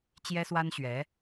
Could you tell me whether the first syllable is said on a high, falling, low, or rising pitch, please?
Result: high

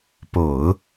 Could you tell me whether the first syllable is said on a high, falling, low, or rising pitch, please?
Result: low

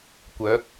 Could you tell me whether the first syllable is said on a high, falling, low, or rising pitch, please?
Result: rising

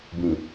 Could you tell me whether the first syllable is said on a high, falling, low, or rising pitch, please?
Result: low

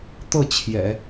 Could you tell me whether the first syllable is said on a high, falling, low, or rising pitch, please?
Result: falling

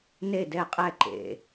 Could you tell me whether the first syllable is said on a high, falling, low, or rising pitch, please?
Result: falling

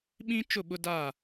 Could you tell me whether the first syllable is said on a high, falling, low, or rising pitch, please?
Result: high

